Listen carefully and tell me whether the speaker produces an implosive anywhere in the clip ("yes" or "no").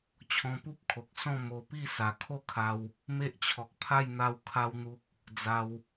no